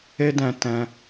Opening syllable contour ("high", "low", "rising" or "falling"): high